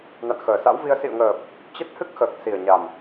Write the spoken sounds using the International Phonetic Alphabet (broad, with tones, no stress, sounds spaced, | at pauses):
n a̰˧˨ n x əː˨˩ s a̰˧˥ w v i˧ ə̯ s ḭ˧˨ ə̯ ŋ əː˨˩ p̚ | t͡ɕ ə˦˥ t̚ h ɨ˦˥ k̚ x əː˨˩ k̚ s i˨˩ ə̯ ɲ a˨˩ m